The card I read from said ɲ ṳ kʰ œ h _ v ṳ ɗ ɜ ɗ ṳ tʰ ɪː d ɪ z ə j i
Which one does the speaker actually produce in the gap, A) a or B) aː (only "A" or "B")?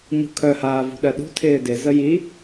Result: B